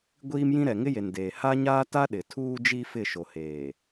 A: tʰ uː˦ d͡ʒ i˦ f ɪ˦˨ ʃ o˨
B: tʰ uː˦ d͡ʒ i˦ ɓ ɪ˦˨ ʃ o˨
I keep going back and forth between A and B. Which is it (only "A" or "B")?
A